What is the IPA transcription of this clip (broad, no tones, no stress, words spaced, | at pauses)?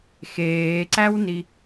xeːǀæwni